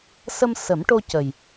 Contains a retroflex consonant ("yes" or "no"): yes